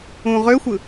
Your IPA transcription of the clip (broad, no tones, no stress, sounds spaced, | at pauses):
ũ ʁ ø xʷ ɯ